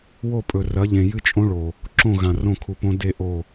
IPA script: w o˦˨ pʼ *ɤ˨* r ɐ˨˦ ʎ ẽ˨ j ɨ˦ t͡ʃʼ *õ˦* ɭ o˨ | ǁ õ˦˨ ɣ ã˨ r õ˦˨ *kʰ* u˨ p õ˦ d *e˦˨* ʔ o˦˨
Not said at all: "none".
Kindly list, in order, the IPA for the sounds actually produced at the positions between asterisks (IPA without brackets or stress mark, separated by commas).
ɵ˨, õ˦, kʰ, e˦˨